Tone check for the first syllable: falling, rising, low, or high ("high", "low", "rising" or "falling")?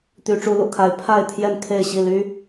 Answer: rising